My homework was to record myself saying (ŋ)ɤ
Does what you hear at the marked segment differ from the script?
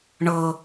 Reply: yes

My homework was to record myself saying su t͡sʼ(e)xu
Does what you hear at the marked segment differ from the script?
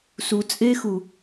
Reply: no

